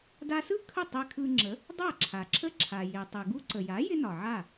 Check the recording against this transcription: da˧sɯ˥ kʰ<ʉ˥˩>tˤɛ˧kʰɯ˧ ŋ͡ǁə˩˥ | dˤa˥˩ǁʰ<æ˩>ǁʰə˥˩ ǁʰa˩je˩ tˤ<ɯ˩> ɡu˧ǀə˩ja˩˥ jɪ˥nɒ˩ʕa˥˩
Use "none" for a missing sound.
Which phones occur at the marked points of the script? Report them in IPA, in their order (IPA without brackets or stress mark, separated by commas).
ə˥˩, a˩, ɯ˩